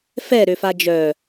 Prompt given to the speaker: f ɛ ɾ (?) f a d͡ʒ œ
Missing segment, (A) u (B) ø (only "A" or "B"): B